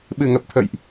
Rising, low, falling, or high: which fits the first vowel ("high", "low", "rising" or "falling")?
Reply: low